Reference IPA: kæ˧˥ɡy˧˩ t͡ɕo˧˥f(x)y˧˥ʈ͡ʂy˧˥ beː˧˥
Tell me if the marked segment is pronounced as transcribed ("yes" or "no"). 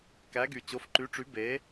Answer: no